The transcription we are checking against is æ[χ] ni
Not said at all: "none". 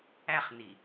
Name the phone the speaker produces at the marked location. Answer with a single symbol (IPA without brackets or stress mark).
χ